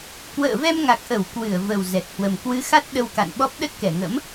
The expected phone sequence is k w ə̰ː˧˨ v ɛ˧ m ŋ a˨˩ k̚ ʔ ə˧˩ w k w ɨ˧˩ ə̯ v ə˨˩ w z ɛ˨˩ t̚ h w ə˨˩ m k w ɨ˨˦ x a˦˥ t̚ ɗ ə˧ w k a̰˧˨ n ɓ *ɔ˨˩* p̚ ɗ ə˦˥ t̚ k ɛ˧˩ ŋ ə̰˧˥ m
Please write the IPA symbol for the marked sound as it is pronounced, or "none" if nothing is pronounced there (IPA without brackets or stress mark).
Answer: ɔ˦˥